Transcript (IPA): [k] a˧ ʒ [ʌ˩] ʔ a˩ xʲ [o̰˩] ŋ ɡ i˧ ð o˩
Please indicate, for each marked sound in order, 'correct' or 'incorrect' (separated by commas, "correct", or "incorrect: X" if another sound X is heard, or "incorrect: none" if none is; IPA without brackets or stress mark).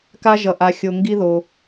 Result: correct, correct, incorrect: o˩